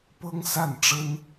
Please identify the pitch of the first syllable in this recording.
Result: high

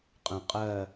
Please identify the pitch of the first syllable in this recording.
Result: low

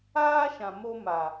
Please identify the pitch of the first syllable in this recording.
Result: high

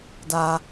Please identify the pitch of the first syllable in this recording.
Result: high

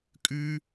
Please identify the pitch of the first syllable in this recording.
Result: high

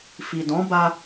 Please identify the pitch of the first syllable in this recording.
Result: low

